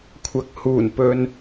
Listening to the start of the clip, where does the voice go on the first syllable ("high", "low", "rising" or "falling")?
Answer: rising